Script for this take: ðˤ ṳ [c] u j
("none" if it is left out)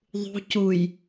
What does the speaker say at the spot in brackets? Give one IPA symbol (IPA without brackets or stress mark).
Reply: c